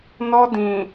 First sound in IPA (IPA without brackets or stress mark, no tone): n